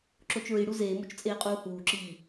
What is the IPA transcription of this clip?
ǁ o t͡ʃ ɹ i ɽ u z eː m o t͡ʃ t͡sʼ eː qʼ uː h uː ǁ iː

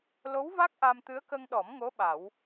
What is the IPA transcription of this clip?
l o˧˥ w v a˦˥ k̚ ʔ a˧ m t̪ ɨ˧˥ ə̯ k ə˧ ŋ ɗ ɔ˨˩˦ m ŋ o˧˥ ɓ a˨˩˦ w

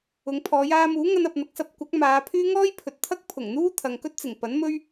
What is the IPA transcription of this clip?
ʊ˨˧ ŋ pʰ ɔː˨˧ j aː˧ m uː˨˥ ŋ ɐ˧ n ɐ˨ p̚ n̪ ɐ˨ k̚ s ɐ˧ p̚ kʷ ɐ˨˥ k̚ m aː˨˧ pʰ yː˥ ŋ ɔː˥ j pʰ ɵ˨ t̚ t̪ʰ ɐ˥ k̚ pʰ ʊ˨˩ ŋ n̪ uː˥ t̪ʰ ɐ˨ ŋ k ɵ˥ t̚ t͡s ɪ˨˩ ŋ p ɐ˨˥ n m ɵ˥ ɥ

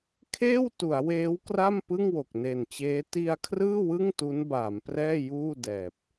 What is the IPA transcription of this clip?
kʰ eː˥˩ w t u˩˦ a̯ w eː˦˥ w k r a˥˩ m p ɯ˥˩ ŋ w o˨˩ k̚ n e˨˩ n t͡ɕ eː˦˥ t i˧ a̯ kʰ r ɯː˥˩ w ɯ˥˩ ŋ t u˦˥ n b aː˩˦ m p r ɛː˥˩ j uː˥˩ d ɛː˨˩ p̚

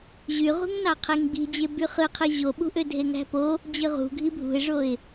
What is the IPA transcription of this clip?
ʑ y ʁ ṳ ŋ n ɑ qʰ e ŋ ɡ͡b i̤ d͡ʑ e b y χ ɯ qʰ ɯ ʑ o ɓ ṳ ʔ ø dʱ e ŋ æ̤ p o | d͡ʑ ɯ ʁ ṳ ɡʱ i bʱ ṳ ɪ̯ ʐ o ɪ̯

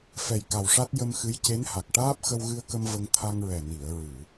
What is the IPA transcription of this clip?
f ɛ˨˩ j k a˨˩ w ʂ a˦˥ t̚ j ə˧ m x ɨ˧˥ j c e˧˥ n h a˨˩ k̚ ʈ aː˦˥ p̚ x ə˧ w ɣ ɨ˧ ə̯ k ə˧ m v ə˧ ŋ t̪ʰ a˧ ŋ ɹ ɛ˨˩ n i˨˩˨ ə̯ ɹ ɨ˨˩˨

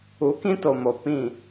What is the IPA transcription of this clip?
u˨˦ k ĩ˦ t o˨ m o˨ p ĩ˦˨

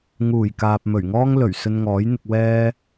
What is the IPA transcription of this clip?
ŋ uː˨˩ j k aː˨ p̚ m ɵ˨˩ ɥ ŋ ɔː˥ ŋ l ɵ˨˩ ɥ s ɵ˧ n ŋ ɔː˨˥ j n̪ ɪ˧ k̚ w ɛː˥

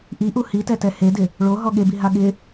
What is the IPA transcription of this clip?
ʔ i ʔ u h i t ɛ t ɛ h e d ɪ | ɭ o ɦ ɔ ɠ e b i ɦ a ɠ ɪ

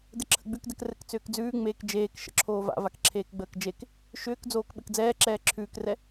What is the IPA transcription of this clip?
d ɘ ǁʰ ə̰ ɡ͡b ʉ k d ɛ k r ɘ k t͡s ʏː k d͡z ʉː ŋ͡m eː k d͡ʒ eː k ʃ ə̰ ǁʰ oː v a̰ v a k ǁʰ eː k ɡ͡b əː k d͡ʒ e k | ʃ ʏː k d͡z oː k ɓ ɘ k d͡z ɛː ǁ ɛː ǁʰ ʉː k r ɛ

